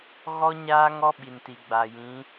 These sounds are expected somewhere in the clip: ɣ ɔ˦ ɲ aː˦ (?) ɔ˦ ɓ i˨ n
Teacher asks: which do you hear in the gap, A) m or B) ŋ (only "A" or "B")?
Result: B